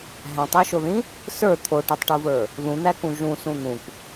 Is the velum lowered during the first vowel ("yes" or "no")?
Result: yes